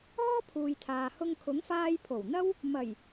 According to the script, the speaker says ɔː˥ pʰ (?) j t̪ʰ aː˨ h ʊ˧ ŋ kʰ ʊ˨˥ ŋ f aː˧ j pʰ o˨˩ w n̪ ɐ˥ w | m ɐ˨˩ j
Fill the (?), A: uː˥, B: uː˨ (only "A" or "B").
B